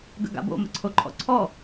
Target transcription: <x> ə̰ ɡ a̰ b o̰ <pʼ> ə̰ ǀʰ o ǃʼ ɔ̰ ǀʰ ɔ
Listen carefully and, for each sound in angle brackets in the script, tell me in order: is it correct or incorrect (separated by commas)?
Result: incorrect, incorrect